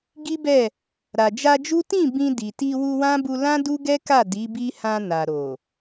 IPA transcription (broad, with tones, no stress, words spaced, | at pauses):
ɡi˦bɛ˦˨ | ɾa˨d͡ʒa˧d͡ʒu˦ tĩ˦˨ bĩ˧ di˨ ti˧wu˧wã˦bu˧ lã˦du˦ɡɛ˦ka˦˨ di˨˦bi˦hã˧ na˨ɾo˨